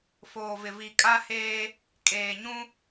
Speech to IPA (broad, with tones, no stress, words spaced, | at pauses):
foː˨vɪ˨ vi˨kʼa˦ heː˦ | kʼeː˨ɲũ˦